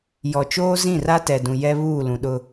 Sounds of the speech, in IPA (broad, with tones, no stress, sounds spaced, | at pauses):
j ɔ˨ t͡ʃ oː˦ z ĩ˦˨ r a˦ t ɛ˨ d ũ˨ j ɛ˦ β uː˦˨ l ũ˨ ɗ ʊ˦